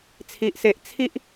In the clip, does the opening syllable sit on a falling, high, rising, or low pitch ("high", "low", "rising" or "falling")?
low